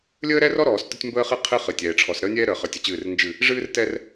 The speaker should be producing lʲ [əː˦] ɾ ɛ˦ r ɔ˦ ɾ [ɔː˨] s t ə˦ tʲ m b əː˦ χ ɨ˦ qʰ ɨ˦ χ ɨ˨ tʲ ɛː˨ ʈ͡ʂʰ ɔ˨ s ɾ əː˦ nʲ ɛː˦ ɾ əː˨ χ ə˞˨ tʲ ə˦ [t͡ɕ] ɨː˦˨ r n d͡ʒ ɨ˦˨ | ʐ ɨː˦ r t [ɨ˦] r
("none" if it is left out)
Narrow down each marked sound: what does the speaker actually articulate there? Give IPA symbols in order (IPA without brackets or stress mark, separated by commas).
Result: əː˦, ɔː˨, t͡ɕ, ɛ˦